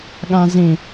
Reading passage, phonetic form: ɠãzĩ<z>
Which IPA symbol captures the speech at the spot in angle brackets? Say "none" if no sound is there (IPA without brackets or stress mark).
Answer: none